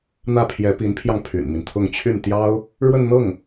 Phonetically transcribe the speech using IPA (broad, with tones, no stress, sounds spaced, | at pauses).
n̪ ä˥˩ pʰ j ɛ˧˥ p i˧˥ n pʰ j ɑ˧ ŋ pʰ y̰˨˩ n m i˦ n t̪ʰ ʊ˥˧ ŋ t͡ɕʰ y˥˩ n t̪ j ɑ˥ ʊ̯ | ɻ w ə˥˧ n n̪ ɤ˥˩ ŋ